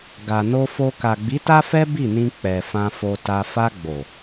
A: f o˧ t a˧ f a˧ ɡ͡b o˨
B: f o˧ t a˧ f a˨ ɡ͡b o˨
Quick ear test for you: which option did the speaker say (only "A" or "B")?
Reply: A